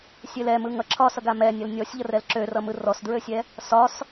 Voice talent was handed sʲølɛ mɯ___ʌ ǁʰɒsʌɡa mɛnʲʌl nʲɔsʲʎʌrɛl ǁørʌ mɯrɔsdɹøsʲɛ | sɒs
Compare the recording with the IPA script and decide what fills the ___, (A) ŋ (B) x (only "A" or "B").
A